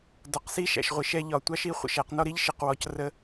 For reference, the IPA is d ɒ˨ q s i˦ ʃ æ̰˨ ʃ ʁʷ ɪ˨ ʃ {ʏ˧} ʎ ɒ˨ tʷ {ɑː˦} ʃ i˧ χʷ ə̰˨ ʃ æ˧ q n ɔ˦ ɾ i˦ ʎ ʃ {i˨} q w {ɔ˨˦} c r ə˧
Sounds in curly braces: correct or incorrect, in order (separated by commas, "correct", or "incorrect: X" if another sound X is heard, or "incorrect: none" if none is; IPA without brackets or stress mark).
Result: incorrect: ɛ˧, incorrect: ɑ˦, correct, incorrect: ɔ˨